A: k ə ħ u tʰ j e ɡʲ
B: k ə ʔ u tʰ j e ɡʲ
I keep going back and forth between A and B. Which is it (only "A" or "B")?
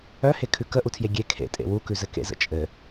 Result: B